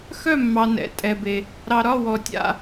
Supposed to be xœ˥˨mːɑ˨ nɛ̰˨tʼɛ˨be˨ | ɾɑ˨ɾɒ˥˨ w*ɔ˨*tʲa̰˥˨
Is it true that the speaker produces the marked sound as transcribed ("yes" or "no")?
yes